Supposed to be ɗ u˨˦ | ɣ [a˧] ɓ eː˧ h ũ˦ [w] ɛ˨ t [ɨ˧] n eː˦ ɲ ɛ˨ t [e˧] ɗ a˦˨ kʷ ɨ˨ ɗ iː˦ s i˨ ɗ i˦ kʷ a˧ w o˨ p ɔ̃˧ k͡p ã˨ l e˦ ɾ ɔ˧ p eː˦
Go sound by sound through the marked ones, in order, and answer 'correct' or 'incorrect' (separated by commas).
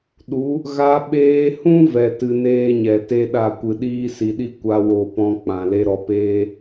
correct, incorrect, correct, incorrect